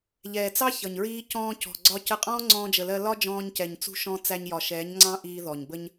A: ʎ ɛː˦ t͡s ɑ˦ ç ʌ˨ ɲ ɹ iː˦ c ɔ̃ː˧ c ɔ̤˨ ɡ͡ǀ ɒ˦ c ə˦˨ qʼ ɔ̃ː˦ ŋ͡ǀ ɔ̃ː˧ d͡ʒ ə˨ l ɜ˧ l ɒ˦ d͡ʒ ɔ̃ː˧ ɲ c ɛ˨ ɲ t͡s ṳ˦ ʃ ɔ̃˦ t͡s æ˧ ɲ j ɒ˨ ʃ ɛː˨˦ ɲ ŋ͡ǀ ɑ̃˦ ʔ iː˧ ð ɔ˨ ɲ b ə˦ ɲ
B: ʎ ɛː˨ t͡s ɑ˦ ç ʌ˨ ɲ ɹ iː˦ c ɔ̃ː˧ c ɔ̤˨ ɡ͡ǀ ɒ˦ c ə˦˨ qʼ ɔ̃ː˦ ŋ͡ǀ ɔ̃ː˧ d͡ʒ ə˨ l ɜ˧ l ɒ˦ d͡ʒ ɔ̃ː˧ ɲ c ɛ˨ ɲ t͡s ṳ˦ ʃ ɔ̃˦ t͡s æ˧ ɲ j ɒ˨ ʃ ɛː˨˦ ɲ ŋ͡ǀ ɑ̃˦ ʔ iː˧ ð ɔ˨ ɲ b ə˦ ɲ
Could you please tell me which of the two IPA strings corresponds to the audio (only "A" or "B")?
B